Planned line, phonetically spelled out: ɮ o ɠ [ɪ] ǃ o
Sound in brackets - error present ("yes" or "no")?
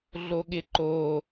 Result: no